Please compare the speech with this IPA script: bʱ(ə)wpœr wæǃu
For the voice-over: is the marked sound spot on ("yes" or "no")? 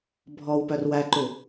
no